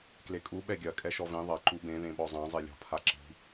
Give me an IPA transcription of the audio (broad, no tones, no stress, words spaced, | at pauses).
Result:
klekʼu ɓɛɡʲɐ kʼɛʃɔvẽ ðˤɐ ǃubẽ ðẽɓɔzˤã zˤelʲɔ̤ pʰaǁi̤